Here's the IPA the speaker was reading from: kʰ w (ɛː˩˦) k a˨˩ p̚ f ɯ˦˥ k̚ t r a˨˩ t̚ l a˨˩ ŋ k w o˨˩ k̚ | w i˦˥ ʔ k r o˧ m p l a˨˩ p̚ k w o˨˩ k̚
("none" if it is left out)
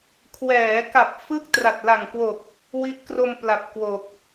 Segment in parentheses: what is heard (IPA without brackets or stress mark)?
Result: ɛː˩˦